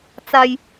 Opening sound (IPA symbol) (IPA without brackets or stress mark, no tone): t͡s